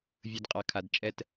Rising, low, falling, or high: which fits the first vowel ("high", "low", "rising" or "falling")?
low